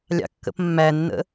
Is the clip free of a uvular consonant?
yes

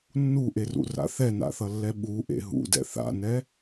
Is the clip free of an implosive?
no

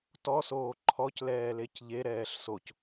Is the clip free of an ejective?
yes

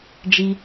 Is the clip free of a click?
yes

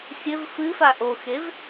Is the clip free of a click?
yes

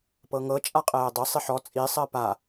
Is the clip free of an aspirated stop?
yes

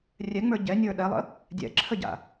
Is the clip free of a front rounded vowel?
yes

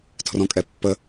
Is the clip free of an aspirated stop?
no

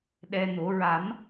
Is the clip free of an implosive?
no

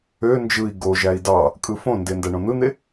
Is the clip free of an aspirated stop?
yes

